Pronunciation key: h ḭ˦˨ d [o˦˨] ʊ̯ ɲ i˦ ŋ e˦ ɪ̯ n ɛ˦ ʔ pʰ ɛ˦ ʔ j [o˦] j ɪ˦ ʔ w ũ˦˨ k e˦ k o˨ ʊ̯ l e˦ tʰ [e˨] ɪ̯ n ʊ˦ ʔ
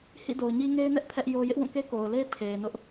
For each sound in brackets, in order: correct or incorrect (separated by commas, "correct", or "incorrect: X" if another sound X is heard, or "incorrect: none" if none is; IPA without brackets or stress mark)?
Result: incorrect: o˨, correct, correct